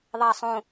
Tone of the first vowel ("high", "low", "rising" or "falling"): falling